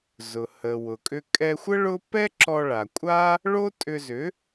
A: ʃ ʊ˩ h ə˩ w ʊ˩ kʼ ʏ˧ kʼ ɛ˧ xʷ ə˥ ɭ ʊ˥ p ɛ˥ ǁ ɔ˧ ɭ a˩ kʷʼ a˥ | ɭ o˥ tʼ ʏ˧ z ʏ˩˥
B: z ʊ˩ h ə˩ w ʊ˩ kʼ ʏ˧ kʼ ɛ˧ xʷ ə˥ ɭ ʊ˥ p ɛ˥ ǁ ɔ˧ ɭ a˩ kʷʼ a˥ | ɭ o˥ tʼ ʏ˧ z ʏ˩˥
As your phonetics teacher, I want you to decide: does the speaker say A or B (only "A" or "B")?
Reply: B